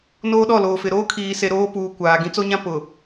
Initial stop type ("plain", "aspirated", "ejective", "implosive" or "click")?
implosive